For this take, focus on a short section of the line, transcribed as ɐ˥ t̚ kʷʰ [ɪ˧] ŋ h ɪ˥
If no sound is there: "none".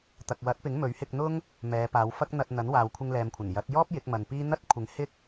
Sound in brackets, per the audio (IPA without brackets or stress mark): ɪ˨˥